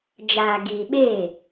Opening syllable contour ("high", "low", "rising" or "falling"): low